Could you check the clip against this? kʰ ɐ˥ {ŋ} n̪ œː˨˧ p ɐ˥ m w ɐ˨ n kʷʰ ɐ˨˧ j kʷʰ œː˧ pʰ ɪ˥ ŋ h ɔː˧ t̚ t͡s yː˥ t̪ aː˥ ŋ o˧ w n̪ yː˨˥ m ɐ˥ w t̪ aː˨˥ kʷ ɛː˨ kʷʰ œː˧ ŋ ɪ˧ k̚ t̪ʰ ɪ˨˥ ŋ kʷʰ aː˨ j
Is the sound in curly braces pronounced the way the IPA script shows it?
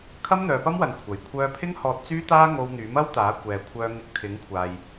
no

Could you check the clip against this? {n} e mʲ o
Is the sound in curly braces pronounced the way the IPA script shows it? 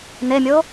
yes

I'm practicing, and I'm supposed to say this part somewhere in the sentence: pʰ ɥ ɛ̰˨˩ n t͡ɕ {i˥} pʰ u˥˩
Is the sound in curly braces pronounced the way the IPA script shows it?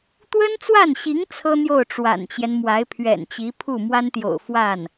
no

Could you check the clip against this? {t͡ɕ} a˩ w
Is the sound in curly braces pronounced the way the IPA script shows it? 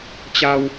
yes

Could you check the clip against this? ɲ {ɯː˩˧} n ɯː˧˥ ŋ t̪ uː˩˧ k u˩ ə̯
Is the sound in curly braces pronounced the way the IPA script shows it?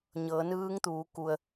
no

